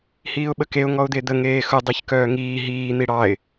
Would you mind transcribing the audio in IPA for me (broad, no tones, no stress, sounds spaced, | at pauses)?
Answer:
h iː ʊ̯ ɓ ə k e ʊ̯ ŋ ɔ ʊ̯ d̪ e d̪ ə ŋ eː x ʊ dˤ i ç k œː ŋ iː ɦ iː n̪ i ɽ ɑ ɪ̯